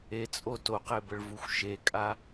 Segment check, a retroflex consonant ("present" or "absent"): present